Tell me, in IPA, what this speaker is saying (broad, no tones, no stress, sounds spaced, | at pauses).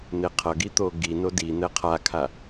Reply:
n̪ e qʰ ʌ ɡ i t̪ o ɡ i n o d i n̪ ɛ qʰ a kʰ a